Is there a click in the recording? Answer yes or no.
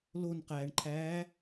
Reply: yes